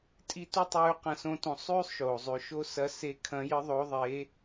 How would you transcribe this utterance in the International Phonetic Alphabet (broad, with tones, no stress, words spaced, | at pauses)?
tʼi˧ tu˥tˤʉː˧˥qɐ̃˧sõ˧˥ tõ˧ sˤʉː˥sˤʃoː˩ zˤʉ˩ʃo˧˥sɐ˧˥ se˧˥ kʰɐ̃˧˥jɨ˧˥ðˤo˧˥ ðˤe˧˥